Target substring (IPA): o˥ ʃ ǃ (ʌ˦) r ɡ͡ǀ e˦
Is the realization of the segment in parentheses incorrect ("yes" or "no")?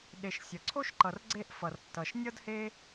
yes